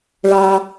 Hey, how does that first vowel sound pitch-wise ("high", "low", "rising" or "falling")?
low